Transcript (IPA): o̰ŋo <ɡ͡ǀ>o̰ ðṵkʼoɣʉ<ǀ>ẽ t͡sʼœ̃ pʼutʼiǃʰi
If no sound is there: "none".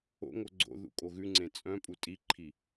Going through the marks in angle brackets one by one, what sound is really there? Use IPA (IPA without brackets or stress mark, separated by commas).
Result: ɡ͡ǀ, ŋ͡ǀ